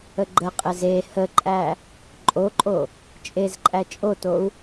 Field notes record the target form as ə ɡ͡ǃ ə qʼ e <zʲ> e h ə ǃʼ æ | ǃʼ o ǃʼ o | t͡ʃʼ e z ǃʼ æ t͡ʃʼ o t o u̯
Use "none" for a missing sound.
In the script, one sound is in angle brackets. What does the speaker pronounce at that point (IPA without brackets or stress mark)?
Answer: z